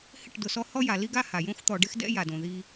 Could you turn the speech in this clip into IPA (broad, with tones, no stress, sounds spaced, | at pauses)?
h ɪ˦˨ ʈ d ʊ˨ s ɔ˦ h ɔ˦ j a˨ l i˦ ɡ a˦ h a˨ j õ˦ x t̪ ɔ˨ ɖ ɪ˦ x d ɛ̰˦ j a˨ d õ˨ ð i˦